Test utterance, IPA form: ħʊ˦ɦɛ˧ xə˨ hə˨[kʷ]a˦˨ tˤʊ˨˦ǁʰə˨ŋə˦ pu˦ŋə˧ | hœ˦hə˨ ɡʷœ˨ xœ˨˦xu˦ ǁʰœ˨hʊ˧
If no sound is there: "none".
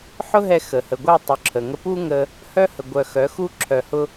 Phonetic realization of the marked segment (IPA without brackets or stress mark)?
ɡʷ